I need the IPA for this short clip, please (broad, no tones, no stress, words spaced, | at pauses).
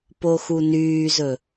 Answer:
poxunyːzɵ